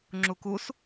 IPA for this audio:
ŋ͡ǁ u k u s

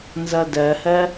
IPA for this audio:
n z ʌ d ɜ h ɜ

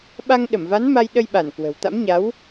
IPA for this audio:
ɓ a˧ ŋ ɗ ə˧˩ m v a˨˦ n m a˧ j ɗ ə˧ j ɓ a˧˩ n k w ə̤˨˩ w t̪ a̰˧˥ m ɲ a˨˦ w

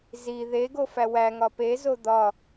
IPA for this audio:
z i ð e ɡ o f æ w æ ŋ ɒ p e z o d̪ ɒ

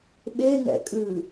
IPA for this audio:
ɓ e ŋ ɛ̰ kʼ ʉ

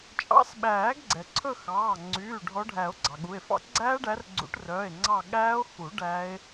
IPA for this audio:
t͡ʃʼ ɑ̰˨˦ s ɓ æː˨˩˦ ɡ ɡ͡ǀ ɛ˩ ǀʰ ɵ˦˨ x ɑː˩˧˩ ŋ͡ǀ yː˩˧˩ ɖʱ ɔ˨˦ ɖʱ æ˨˩˦ o̯ ɡ͡ǀ ɑ˩ ɠ u˩˧˩ e̯ f ɑ̰˦˥ ɡ͡ǀ æː˦˥ ɖ æ˨˦ r ɡ͡ǀ ṵ˨˩˦ ʈ r œː˩˧˩ e̯ ŋ͡ǀ ɑ˦˨ ɠ æː˦˥ o̯ x u˨˩˦ ɖ æ˦˥ e̯

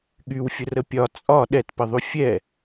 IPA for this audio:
ɠ y w fʲ ə r ə pʲ ɒ t͡sʼ ɒ ɗ ɛ t p ə ðˤ y fʲ ɛ

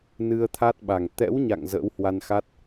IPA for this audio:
n ɨ˧ ə̯ t̪ʰ a˦˥ t̚ ɓ a˨˩ ŋ t̪ ɛ̰˧˥ w ɲ a̰˧˨ ŋ z ə̰ː˧˥ w h w a˧ n x a˦˥ t̚

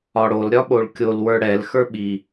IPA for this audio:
ɒ ɽ o l ɾʲ ɒ ɓ o ɭ kʲ o l w ə˞ ɽ ɛ l x ə˞ ɓ i

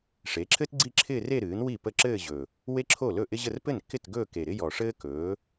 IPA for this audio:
ʂ e˩˥ ǁʰ ɘ˥ t ɡ͡ǀ i˥˧ ǁʰ ɪː˥˧ r e˥˧ ɾ ɨː˩˥ n w i˥˩ p ə˥˩ ǁ ɘː˥˧ ʑ ɵ˨˩ | w e˥ ǁʰ o˥˩ l ɵ˥˩ ʔ ɪ˥ ʑ ə˥˧ r p ɘ˥˩ n kː ɪ˥˩ t ɡ ɵː˥˧ k e˨˩ ɾ ɪ˥ j ɔ˨˩ ʂ ɘː˥ k ɵː˩˥

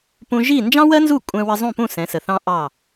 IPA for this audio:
p ũ˧ ʒ i˥˩ n d͡ʒ ɑ̃˥ w ɜ˥ n z u˥˩ kʷʼ ɛ̃˧ w ə˧ zˤ ũ˥˩ p ũ˥˩ s ɛ̃˩˥ s ə˩ θ ɑ̃˥ ʔ ɑ˥˩

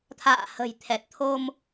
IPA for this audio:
t̪ʰ a̰ː˧˨ h ə̤˨˩ j t̪ʰ ɛ˨˩ t̚ t̪ʰ o˧ m

